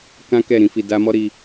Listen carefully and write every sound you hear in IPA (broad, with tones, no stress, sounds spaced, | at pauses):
k ã˦ k ɛ˦˨ ɾ ĩ˧ f i˧ d a˧ m ɔ˦ ɾ i˧